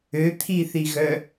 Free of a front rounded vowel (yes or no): no